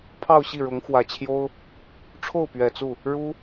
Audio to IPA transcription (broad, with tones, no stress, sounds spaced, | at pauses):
pʰ ɑ˥˧ ʊ̯ ɕ i˥˩ ɻ ʊ˧˥ ŋ x w ä˨˩ t͡ɕʰ j o˥ ʊ̯ | ʈ͡ʂʰ o˥˩ ʊ̯ p ɥ ɛ˨˩ t͡s u˥˩ | ɻ u˥